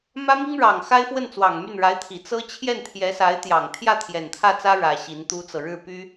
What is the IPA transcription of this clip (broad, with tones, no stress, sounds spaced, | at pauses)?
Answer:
m ä˥ m i˥ ŋ ɻ ɑ˨˩ ŋ x a˥ ɪ̯ f w ə˥˩ n t͡s w ɑ˨˩ ŋ m y˥˩ n ɻ a˧˥ ɪ̯ t̪ʰ i˨˩ t͡s ɤ˥ t͡ɕʰ j ɛ˥˩ n t̪ʰ j ɛ˧˥ s a˧˥ ɪ̯ t̪ j ɑ˨˩ ŋ t̪ʰ j ä˥˩ t̪ʰ j ɛ˨˩ n t̪ʰ ä˥˩ t͡s ä˥ ɻ ä˧˥ ɕ i˧˥ n t̪ u˥ t͡s ɤ˨ ɻ ɻ̩˥˩ p y˥